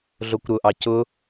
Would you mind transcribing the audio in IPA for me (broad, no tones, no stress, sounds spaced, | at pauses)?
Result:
ɮ o kʷ ɾ ʊ ʔ ɑ c ʊ